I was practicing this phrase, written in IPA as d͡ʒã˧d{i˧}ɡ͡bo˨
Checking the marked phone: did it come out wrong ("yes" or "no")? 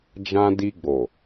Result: no